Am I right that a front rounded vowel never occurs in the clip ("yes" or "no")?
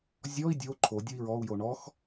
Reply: yes